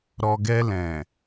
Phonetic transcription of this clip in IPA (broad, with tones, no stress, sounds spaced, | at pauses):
ɾ ɔ˨ ɡ ɛ˧ l ɛ̃˨